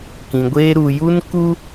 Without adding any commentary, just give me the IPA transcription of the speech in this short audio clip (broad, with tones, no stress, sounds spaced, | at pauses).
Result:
k ĩ˨ ɡʷ eː˦ ɾ u˨ j u˦ n k u˦